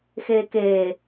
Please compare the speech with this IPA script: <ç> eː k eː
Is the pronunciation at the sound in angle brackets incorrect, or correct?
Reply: incorrect